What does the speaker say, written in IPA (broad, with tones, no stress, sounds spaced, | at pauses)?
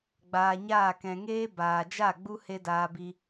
ɡ͡b aː˧ ɲ aː˦˨ k ɛ̃˧ ŋ eː˦ b aː˨ d͡ʒ a˦˨ ɡ͡b u˦ h e˦ d aː˧ b i˧